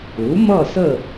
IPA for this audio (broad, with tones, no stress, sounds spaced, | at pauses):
u˩˥ m ʌ˥˨ s ə˥˨